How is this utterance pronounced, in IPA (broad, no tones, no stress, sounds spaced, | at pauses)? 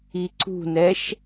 i ǀ ṳ n ɛ ʃ